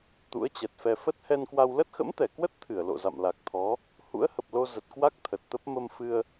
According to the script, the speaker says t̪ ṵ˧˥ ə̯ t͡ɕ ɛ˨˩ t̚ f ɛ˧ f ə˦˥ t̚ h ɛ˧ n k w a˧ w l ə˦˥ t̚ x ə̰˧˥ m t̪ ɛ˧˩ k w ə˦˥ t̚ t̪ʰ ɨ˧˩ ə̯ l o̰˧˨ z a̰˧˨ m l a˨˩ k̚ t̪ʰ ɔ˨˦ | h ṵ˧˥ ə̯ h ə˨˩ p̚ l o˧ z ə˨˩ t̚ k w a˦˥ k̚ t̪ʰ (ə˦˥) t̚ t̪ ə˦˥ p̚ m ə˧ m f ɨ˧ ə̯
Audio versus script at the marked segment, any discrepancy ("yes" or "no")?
yes